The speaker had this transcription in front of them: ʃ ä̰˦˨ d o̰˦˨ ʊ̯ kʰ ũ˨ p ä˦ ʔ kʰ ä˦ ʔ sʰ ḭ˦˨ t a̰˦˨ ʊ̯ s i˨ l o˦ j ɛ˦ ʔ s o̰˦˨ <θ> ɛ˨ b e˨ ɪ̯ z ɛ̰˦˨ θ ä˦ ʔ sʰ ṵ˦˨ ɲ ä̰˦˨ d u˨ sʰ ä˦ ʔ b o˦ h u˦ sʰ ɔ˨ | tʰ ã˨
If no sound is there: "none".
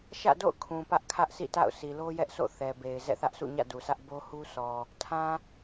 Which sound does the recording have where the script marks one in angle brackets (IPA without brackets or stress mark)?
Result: θ